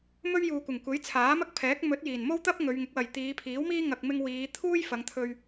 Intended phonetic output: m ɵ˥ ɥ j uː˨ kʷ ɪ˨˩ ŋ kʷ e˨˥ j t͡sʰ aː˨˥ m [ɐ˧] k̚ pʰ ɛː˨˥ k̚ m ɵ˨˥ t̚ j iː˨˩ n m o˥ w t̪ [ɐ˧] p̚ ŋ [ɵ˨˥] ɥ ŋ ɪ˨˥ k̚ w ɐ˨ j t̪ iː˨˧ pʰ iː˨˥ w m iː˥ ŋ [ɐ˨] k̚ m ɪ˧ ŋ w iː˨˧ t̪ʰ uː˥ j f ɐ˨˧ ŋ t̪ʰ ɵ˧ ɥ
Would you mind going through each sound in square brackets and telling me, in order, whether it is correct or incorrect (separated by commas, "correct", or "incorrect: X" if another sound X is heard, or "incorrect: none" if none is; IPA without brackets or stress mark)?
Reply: incorrect: ɐ˥, incorrect: ɐ˥, incorrect: ɵ˨˧, correct